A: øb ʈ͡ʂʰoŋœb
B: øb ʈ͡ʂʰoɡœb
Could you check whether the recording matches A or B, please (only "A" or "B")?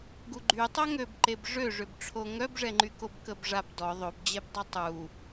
A